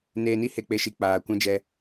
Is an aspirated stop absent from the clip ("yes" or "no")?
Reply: yes